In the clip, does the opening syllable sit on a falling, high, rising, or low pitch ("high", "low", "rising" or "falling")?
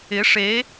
rising